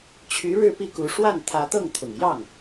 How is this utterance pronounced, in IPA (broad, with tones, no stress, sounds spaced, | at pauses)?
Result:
t͡ɕʰ y˧˥ ɻ ɻ̩˥˧ p i˥˩ k u˧˥ ʂ w a˥˩ n t̪ʰ ä˧˥ t̪ ɤ˥˩ ŋ t̪ʰ ʊ˨˩ ŋ j ɑ˥˩ ŋ